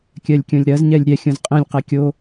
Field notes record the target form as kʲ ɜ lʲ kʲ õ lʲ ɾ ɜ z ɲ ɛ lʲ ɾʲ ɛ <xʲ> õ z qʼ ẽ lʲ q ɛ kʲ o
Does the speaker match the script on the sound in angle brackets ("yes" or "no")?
yes